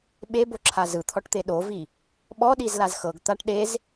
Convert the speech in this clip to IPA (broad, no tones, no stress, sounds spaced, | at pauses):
ɓ e b o ǁʰ a z ɯ t̪ʰ ɔ ʈ t̪ e ɗ o v i | ɓ ɔ ɗ i z l a z x ɤ ɡ t̪ a ʈ ɗ e z